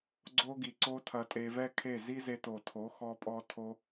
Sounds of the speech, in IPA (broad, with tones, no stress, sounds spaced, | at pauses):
ɡ͡ǀ o˦ ɡ i˨ ǀ o˦ tʰ ɐ˧ tʼ e˧ v ɛ˦ kʰ e˦˨ z i˦ z e˧ t o˨ tʰ o˨˦ x ɔ˦ pʼ ɔ˦ tʰ o˦